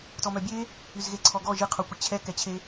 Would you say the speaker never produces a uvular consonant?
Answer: no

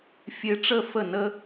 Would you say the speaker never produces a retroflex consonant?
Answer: no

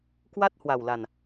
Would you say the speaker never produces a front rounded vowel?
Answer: yes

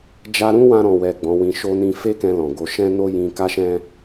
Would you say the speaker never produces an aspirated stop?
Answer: yes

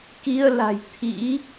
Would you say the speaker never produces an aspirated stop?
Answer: no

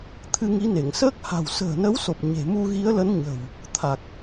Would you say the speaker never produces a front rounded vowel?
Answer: yes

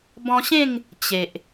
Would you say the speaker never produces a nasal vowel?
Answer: no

